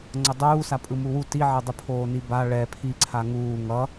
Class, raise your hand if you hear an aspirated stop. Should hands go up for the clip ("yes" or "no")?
yes